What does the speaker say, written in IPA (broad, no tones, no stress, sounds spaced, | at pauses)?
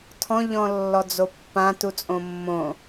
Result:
tʰ ɔ̃ ʎ ɔ̃ lː ɔ d͡z o pː ã t u t͡sʼ õ mː õ